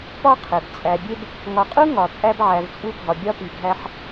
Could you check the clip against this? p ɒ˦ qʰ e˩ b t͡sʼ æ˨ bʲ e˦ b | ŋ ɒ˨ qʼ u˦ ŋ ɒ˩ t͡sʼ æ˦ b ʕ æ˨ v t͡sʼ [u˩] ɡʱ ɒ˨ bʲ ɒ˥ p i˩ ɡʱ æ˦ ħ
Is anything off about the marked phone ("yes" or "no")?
yes